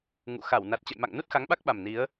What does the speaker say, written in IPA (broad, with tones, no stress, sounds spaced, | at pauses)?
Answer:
ŋ ṵ˧˨ x a˧˩ w n a˨˩ t̚ t͡ɕ ə̰˧˨ j m a̰˧˨ ŋ n u˦˥ t̚ x a˨˦ ŋ ɓ a˦˥ k̚ ɓ a˨˩ m n i˨˦ ə̯